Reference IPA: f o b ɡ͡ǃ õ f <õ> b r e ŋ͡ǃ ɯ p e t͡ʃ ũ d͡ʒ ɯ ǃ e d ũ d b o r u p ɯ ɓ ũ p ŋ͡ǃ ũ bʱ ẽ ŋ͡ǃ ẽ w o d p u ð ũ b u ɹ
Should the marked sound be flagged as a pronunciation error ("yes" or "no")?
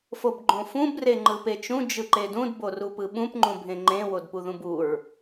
yes